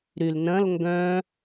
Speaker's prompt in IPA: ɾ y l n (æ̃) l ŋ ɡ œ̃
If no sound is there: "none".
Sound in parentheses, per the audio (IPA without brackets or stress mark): ɐ̃